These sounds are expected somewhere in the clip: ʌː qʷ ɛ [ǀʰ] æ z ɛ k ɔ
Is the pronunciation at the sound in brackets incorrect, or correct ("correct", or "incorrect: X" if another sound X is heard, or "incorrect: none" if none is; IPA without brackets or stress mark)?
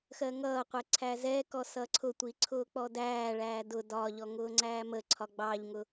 correct